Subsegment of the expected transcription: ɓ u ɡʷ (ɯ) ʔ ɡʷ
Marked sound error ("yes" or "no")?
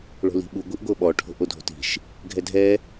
no